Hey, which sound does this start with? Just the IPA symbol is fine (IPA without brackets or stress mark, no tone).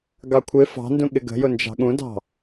ɡ